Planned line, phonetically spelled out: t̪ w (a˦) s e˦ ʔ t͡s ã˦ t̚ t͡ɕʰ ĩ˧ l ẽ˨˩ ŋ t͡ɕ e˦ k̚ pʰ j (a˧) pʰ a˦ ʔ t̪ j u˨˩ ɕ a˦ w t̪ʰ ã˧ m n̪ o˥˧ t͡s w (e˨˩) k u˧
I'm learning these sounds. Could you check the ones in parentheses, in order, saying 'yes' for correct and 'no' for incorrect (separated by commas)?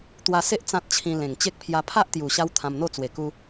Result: no, yes, yes